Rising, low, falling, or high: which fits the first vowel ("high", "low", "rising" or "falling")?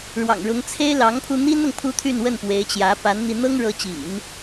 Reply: low